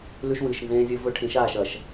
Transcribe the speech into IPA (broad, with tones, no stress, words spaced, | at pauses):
lʉ˦ʃwɨː˨ʃnzẽː˦zʲɵ˦ vɵ˦ʈʰĩ˨˦ʃaː˦˨ʃ ɐ˨ʃ